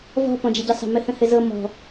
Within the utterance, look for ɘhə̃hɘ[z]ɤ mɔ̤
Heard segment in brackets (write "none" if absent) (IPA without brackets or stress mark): z